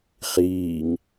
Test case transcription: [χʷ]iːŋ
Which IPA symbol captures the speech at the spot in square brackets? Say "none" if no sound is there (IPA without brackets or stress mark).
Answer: χ